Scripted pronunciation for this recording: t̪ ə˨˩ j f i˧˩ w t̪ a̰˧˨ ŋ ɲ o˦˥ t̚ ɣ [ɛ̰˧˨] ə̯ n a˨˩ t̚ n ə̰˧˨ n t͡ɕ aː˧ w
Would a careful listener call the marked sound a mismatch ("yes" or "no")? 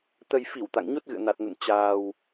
yes